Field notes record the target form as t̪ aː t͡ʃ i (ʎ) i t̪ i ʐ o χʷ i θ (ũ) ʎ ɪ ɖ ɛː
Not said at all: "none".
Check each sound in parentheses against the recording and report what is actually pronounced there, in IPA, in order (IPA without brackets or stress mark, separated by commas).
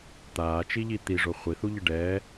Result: ʎ, u